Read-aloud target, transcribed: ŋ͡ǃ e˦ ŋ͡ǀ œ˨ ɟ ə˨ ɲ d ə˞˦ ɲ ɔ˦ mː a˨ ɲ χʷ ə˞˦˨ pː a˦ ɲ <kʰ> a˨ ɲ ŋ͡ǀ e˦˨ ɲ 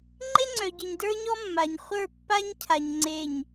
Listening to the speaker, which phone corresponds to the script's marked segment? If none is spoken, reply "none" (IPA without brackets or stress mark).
cʰ